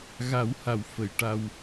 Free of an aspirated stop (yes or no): yes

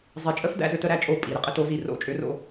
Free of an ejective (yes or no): no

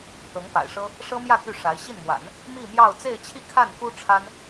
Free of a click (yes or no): yes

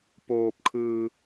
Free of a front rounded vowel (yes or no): yes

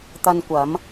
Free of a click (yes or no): yes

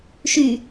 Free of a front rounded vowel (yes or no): no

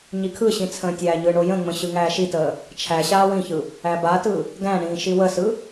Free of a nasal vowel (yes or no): no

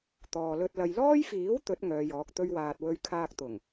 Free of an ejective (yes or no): yes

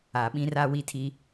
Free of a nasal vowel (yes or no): no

